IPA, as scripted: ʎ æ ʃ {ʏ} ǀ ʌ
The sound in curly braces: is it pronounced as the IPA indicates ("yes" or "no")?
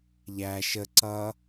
no